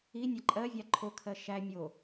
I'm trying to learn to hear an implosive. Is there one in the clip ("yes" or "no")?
no